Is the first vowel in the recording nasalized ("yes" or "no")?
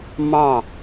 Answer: yes